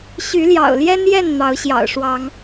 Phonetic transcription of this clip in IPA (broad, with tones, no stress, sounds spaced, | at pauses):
ɕ y˨˦ l j ɑ̰˨˩ ʊ̯ l j ɛ˦ n j ɛ˥˨ n n̪ ɑ˨˦ ʊ̯ ɕ j ɑ̰˨˩ ʊ̯ ʂ w ɑ˨˦ ŋ